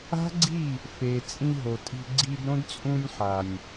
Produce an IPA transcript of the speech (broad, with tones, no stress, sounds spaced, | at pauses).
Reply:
a̤˦ ɡ͡ǀ i˦˨ | f e˨ t͡sʼ ĩ˧ ɦ o˨ tʼ i̤˧ ɡ͡ǀ i˧ d ɾ õ˦ d t͡sʼ ũ˧ nʲ ħ a˨ nʲ